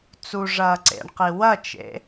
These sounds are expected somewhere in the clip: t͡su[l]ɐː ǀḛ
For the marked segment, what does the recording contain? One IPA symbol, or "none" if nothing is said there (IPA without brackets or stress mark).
ʐ